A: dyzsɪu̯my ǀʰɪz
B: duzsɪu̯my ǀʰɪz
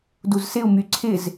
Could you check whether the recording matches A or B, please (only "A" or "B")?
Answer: B